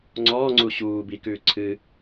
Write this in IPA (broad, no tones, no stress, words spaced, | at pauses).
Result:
ŋ͡ǀɔːŋ͡ǀu ɕuː bikʉː ǀʰɨ